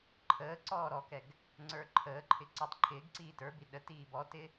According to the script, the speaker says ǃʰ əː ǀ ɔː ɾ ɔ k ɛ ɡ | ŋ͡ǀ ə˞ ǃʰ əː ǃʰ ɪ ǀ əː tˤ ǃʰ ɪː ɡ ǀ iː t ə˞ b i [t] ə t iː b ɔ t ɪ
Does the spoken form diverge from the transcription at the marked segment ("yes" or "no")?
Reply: yes